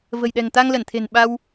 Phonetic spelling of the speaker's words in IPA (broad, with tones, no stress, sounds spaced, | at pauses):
v ə̤˨˩ j ɗ ɛ̤˨˩ ŋ t̪ a˧ ŋ l ə˧˩ n t̪ʰ e̤˨˩ n ɓ a˧ w